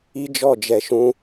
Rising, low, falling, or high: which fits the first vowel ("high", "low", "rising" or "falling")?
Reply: high